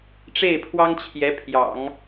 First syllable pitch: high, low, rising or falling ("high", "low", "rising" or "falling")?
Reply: falling